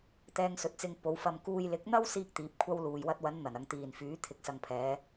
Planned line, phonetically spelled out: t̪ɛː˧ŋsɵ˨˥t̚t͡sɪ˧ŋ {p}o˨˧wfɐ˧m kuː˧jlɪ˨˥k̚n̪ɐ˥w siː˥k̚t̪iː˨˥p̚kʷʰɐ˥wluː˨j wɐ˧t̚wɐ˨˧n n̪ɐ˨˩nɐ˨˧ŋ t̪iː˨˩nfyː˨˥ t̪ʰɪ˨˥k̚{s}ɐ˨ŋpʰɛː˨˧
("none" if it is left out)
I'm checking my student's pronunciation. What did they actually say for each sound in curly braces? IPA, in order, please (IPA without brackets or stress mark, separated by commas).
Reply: p, s